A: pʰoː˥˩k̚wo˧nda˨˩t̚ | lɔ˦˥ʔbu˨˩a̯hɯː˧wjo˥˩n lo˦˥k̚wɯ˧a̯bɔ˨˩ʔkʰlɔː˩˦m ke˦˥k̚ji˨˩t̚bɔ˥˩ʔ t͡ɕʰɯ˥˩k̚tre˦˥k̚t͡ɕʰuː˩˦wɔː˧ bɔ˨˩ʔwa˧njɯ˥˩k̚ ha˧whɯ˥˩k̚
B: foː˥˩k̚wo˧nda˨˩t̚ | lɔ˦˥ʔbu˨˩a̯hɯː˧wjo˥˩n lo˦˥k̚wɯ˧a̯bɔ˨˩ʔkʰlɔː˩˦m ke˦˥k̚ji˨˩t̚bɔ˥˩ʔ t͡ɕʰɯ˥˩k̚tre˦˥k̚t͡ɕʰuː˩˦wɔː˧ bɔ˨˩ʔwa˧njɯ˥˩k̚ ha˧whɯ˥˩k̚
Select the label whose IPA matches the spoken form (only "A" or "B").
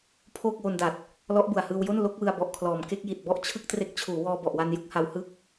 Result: A